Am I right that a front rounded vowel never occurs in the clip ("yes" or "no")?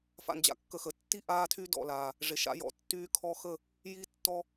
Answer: no